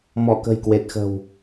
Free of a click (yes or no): yes